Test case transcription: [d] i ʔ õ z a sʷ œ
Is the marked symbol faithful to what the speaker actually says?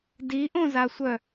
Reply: yes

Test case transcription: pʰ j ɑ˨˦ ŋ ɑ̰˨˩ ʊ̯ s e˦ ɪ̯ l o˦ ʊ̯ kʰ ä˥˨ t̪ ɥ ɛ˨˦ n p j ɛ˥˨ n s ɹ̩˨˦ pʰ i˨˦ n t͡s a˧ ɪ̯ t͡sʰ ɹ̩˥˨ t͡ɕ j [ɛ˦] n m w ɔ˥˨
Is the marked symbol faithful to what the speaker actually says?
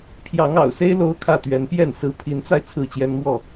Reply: yes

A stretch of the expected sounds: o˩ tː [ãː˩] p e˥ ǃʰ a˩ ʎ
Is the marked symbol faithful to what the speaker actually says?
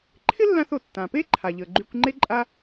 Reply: no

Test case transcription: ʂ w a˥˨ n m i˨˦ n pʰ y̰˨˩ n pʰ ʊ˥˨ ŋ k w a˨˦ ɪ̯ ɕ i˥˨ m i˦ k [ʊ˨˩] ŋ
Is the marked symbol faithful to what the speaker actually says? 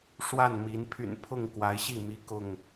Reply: no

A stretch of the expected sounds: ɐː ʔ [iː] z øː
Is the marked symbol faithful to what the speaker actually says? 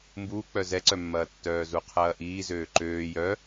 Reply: yes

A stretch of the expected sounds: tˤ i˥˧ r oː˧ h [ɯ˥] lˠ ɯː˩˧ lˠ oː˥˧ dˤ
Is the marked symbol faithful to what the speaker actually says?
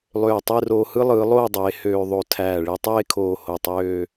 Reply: yes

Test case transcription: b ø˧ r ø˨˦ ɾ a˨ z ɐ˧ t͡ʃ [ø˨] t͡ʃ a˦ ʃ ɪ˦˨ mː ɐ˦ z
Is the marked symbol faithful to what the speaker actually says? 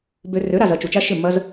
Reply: no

